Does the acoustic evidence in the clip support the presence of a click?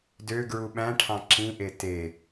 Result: yes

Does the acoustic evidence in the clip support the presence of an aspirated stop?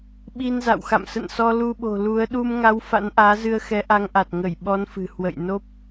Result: no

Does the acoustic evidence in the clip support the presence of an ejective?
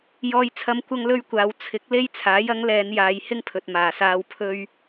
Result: no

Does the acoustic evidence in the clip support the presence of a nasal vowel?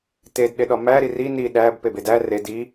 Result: no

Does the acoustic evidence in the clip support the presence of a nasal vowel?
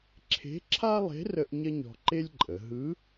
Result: no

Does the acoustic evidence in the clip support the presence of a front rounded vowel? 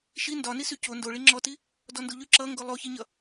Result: yes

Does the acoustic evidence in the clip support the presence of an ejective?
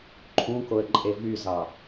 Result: yes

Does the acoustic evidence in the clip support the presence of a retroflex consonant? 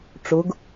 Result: yes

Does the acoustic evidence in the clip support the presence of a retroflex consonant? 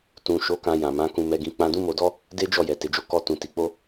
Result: no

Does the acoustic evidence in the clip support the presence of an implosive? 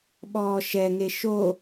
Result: yes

